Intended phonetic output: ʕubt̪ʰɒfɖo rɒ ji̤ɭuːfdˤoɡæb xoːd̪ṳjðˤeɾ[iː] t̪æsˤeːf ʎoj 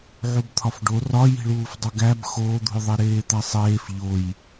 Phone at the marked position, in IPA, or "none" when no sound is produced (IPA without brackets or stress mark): eː